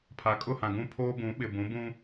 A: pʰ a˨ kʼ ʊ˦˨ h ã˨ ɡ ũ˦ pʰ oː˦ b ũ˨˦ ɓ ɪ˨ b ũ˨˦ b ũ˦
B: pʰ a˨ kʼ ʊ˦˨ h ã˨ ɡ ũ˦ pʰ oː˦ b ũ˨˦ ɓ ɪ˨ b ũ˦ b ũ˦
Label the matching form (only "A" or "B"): A